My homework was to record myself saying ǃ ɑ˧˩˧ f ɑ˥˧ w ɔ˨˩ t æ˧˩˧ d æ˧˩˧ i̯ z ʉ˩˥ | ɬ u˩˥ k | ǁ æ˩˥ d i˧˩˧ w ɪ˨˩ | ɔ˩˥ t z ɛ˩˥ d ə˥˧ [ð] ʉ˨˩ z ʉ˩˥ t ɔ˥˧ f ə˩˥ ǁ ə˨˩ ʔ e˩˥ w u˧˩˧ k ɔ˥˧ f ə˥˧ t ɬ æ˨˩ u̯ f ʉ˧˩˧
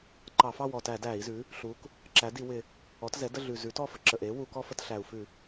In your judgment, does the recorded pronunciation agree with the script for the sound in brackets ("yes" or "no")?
no